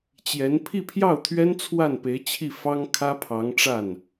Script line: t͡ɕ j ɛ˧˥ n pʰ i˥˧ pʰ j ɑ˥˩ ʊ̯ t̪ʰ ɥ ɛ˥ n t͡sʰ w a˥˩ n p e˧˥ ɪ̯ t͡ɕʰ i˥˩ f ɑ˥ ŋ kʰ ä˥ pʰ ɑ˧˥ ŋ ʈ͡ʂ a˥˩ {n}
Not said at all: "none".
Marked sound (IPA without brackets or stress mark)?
n